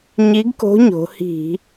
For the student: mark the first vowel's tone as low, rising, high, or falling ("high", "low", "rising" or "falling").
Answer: rising